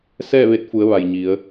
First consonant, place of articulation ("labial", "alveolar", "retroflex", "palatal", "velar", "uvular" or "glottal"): alveolar